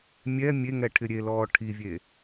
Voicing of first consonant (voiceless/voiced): voiced